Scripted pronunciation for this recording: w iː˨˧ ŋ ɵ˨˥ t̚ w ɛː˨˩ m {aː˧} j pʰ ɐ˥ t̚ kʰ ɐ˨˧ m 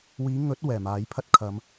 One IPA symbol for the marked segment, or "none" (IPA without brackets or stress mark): aː˨˥